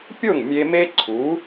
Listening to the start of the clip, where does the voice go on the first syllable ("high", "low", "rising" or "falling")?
falling